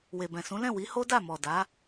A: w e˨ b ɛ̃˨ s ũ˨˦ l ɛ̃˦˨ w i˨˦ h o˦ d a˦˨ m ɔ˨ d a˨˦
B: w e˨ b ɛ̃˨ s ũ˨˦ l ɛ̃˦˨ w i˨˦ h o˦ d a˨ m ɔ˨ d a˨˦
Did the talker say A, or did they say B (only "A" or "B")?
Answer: A